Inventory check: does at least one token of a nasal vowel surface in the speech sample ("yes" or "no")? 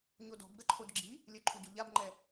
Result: no